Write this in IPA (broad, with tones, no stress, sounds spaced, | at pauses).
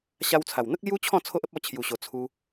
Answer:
ɕ a˧ w t͡sʰ a˨˩ w n̪ ə˦ k̚ l j u˦ t͡ɕʰ ɔ̃˥˧ t͡sʰ o˦ ʔ ə˦ p̚ ɔ˧ t͡ɕʰ j u˨˩ ɕ o˨˩ t͡sʰ u˧